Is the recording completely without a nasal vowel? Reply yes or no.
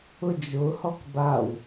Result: yes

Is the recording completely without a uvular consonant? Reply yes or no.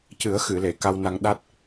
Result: yes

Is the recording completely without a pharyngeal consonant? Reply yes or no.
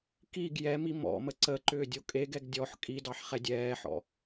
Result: no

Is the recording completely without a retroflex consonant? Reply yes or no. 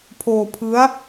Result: yes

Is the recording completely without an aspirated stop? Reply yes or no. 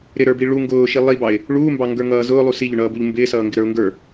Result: yes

